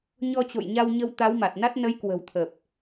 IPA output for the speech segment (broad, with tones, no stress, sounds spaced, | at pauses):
ɲ ɔ˧ t͡ɕ o̰˧˨ j ɲ a˧ w ɲ ə˧ w t̪ a˨˦ w m a˨˩ t̚ n a˦˥ t̚ n ə˨˦ j k w ə̤˨˩ w t̪ʰ ə˨˩ p̚